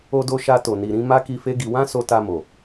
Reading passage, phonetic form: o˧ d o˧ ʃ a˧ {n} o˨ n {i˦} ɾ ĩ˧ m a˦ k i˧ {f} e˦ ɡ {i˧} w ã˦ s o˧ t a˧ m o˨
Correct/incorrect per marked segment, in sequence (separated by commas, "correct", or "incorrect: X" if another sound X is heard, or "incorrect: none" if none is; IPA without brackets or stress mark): incorrect: t, incorrect: i˨, correct, correct